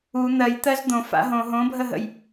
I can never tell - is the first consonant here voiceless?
no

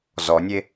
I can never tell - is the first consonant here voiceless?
no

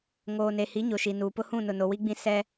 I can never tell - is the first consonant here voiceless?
no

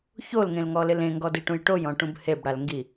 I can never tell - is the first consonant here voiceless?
yes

